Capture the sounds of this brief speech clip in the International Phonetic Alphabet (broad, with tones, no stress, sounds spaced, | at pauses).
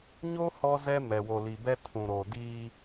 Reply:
ɲ o˦ h ɔ˦ z ɛ˦ m ɛ˨ w o˨ l i˨ b ɛ˦ tʰ ũ˨ ɾ o˨ d iː˦